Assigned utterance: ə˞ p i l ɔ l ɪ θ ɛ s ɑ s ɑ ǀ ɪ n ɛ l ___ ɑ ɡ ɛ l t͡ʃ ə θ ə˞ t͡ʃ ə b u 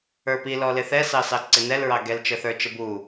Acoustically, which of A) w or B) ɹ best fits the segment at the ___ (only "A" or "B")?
B